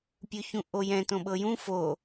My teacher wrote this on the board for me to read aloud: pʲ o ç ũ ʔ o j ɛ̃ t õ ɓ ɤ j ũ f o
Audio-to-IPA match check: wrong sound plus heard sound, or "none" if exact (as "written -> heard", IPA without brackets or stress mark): none